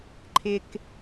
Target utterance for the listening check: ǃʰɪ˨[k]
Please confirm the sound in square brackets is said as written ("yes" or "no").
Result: yes